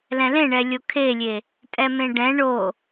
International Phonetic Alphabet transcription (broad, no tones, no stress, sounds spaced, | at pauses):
l ɛ̃ l ẽ ɳ ɛ lʲ o kʰ e lʲ e | tʼ ɛ m ẽ ɖ ɛ̃ ɳ o